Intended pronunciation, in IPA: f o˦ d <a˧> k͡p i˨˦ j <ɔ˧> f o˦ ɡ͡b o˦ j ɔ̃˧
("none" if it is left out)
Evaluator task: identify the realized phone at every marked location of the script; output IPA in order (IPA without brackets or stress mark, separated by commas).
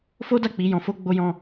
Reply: a˦˨, ɔ̃˧